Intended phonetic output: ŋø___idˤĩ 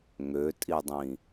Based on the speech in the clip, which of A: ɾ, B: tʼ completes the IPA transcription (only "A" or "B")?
B